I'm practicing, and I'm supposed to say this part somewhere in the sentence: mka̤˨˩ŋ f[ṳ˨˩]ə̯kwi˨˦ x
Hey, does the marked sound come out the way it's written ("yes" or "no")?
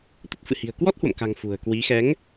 yes